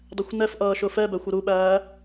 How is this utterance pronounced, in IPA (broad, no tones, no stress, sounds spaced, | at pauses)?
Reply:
dˤ ɛ xʷ n ɛ f ʔ ʌː ʃ ʊ f ɛ b æ xʷ ʊ ɾ u ɓ æː